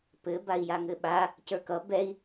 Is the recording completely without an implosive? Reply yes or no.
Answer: no